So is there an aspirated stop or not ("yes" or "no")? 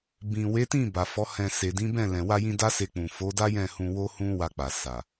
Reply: no